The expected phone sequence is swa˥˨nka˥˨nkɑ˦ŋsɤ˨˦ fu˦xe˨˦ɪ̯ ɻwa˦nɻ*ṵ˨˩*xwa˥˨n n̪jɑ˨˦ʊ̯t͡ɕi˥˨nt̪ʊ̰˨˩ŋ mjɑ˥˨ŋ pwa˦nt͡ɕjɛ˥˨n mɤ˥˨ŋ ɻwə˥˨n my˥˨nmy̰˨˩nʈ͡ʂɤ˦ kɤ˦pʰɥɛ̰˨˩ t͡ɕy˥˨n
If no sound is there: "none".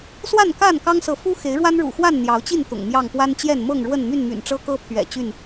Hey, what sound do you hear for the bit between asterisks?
ṵ˨˩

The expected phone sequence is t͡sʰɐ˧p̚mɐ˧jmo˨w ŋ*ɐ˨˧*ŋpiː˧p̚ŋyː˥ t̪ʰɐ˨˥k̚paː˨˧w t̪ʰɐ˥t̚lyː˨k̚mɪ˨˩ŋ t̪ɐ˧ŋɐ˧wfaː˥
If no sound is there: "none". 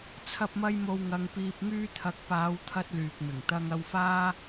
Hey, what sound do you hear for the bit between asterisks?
ɐ˨˧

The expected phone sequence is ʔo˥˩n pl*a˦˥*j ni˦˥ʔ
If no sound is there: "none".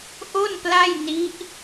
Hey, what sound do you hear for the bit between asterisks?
a˥˩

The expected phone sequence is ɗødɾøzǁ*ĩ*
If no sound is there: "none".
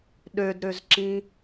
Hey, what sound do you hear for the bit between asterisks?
ĩ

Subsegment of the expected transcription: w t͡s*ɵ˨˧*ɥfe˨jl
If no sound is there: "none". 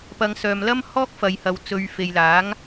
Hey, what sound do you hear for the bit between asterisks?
ɵ˨˧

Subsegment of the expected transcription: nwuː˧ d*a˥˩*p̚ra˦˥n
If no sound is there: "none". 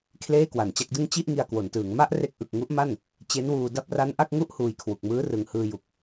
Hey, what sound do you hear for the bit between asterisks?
a˥˩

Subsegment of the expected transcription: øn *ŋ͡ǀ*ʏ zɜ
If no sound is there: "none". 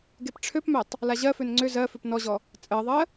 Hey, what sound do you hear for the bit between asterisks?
ŋ͡ǀ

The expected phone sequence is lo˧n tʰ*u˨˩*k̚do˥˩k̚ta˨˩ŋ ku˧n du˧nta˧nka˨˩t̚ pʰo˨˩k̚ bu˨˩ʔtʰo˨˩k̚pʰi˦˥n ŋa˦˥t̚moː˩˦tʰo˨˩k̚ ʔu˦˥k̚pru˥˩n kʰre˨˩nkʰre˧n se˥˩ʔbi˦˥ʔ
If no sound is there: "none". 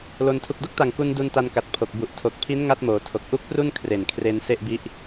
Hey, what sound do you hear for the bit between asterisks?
u˨˩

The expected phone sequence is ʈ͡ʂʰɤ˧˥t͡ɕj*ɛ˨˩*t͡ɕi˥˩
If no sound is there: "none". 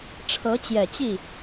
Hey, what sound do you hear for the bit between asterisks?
ɛ˨˩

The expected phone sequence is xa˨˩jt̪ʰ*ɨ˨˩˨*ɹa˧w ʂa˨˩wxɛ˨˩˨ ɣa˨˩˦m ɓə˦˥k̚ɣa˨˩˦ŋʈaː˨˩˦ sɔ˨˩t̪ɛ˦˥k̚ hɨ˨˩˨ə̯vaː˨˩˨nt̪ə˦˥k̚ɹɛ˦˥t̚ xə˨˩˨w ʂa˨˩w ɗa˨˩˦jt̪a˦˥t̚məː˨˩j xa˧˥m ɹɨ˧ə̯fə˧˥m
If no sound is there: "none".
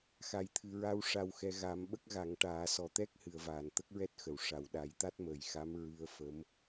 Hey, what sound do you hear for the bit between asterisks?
ɨ˨˩˨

